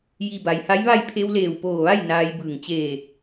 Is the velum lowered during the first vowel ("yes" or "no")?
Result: no